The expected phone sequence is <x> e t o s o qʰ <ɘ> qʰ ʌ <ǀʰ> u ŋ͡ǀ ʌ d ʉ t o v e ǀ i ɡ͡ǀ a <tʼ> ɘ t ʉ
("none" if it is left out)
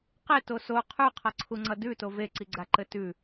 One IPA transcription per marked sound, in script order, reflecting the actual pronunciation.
q, ʉ, ǀʰ, ǃ

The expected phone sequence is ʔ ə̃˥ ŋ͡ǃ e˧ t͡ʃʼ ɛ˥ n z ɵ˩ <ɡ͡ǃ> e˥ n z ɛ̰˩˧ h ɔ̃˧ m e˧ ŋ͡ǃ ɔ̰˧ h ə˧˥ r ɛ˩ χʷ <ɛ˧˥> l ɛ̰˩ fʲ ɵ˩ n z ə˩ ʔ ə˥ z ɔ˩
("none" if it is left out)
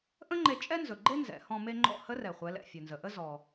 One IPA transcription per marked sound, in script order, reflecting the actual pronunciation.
ɡ͡ǃ, ɛ˩˧

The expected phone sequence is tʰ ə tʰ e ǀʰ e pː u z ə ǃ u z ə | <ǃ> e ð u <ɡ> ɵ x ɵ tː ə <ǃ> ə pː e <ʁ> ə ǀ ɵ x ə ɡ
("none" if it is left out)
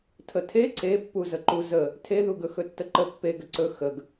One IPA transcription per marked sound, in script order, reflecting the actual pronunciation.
tʰ, ɡ, ǃ, ɡ

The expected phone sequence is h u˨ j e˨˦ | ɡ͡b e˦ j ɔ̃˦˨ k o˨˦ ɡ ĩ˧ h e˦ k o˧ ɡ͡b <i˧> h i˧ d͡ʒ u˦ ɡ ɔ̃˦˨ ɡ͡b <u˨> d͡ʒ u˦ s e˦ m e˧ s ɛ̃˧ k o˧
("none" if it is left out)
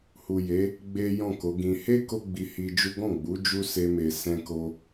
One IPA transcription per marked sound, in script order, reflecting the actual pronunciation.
i˧, u˨˦

